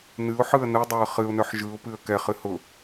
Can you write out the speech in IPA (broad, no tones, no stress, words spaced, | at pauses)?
nɨʊ̯ħɯə̯ nɯdˤœə̯ χɨʊ̯nœħ ʒɯʊ̯pɨə̯ kɛχɨ hʊ